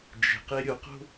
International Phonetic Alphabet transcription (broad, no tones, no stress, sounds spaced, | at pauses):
d͡ʒ e̤ q e ɾʲ o q o̤